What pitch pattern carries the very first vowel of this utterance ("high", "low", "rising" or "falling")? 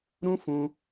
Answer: high